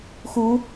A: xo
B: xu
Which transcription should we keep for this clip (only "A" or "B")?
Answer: B